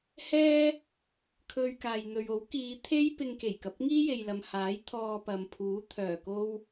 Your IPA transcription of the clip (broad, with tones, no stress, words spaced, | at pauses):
hɛː˥ | kʰɵ˧ɥkaː˨jn̪ɵ˨ɥo˨˥w kiː˨˧t̪ʰe˥j pɪ˧ŋke˨˩jkɐ˨p̚ ŋiː˥je˨jlɐ˨mhaː˨˥j t̪ʰɔː˧pɐ˨mpʰuː˨˥ t̪ʰœː˨˩ko˥w